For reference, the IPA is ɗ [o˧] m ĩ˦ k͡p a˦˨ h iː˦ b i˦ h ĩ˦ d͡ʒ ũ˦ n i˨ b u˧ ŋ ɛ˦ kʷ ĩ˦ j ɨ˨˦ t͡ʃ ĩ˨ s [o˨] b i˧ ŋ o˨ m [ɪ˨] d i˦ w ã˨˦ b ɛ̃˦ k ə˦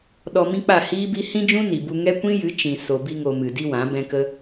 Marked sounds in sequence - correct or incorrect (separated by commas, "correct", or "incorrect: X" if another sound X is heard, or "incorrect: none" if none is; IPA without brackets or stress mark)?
incorrect: ɔ˧, correct, incorrect: ɨ˨